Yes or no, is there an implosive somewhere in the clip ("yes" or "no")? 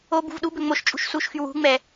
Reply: yes